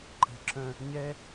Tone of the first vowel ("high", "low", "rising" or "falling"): low